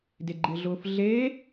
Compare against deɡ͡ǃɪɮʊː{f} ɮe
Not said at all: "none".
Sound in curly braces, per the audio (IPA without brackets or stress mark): f